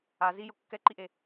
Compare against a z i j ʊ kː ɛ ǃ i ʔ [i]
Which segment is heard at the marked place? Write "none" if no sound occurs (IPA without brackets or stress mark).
e